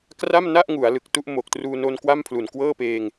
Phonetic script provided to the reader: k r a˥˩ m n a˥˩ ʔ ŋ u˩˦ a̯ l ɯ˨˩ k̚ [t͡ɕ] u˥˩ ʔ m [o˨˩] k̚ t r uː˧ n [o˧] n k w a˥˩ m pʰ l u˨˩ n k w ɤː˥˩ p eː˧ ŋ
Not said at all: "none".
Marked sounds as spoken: t, o˨˩, o˧

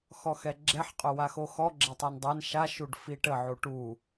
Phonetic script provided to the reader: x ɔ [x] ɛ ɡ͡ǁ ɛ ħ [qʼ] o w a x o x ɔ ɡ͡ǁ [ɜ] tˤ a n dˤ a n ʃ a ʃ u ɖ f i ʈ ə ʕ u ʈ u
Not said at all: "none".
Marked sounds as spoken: x, qʼ, ɛ

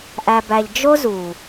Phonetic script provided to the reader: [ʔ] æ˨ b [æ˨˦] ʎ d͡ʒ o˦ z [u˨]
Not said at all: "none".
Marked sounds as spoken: ʔ, æ˨, u˨

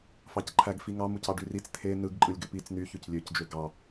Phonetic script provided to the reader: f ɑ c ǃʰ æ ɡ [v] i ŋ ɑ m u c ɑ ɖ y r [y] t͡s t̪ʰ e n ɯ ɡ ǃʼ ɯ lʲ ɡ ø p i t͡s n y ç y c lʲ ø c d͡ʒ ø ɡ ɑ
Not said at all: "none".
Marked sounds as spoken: f, i

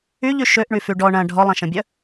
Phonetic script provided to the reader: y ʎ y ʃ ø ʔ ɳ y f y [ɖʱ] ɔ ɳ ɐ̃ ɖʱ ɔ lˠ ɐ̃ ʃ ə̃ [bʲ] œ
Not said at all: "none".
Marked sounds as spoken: ɖ, bʲ

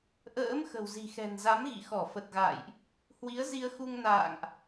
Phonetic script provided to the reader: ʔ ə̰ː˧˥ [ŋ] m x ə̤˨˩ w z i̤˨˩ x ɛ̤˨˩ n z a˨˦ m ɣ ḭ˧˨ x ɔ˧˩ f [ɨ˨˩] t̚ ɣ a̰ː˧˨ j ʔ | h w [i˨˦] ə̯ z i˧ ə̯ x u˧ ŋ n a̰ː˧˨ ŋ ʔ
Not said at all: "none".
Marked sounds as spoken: none, ə˨˩, i˨˦

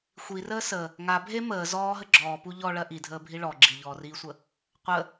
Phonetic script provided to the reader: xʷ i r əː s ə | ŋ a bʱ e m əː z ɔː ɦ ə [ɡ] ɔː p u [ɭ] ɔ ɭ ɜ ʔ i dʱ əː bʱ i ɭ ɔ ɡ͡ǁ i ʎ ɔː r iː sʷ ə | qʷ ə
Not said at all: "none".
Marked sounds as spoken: ɡ͡ǁ, ʎ

